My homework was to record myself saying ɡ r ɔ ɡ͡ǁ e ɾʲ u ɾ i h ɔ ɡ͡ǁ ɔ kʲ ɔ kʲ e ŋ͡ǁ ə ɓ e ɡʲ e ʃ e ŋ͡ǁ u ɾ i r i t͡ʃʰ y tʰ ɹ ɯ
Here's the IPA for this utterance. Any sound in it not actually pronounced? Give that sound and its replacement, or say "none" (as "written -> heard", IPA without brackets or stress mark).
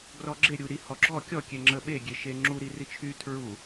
ɯ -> u